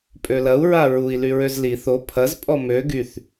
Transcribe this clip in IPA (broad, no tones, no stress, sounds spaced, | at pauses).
pʼ ø l ɐ u̯ ɹ a ɹ u i̯ l y ɹ ø z l i θ o pʰ ɐ z pʼ ɔ m ø ɡ y θ